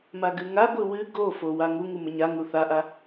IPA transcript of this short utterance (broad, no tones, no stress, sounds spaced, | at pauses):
m a ɡ ɨ ŋ a ɡʷ ɨ w ɨ ɡ o f o w a ŋ u ŋ u m ə ɲ a ŋ u θ a ʔ a